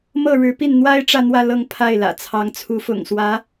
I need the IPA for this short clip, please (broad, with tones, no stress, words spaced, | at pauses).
mɤ˥˩ɻɻ̩˧˥pi˥˩n n̪wa˥ɪ̯ ʈ͡ʂä˥˧n̪wä˥˧ lɤ˥˧ŋ pʰa˥˩ɪ̯lä̰˨˩ t͡sʰɑ˧˥ŋt͡sʰu˧˥fʊ̰˨˩ŋswä˧˥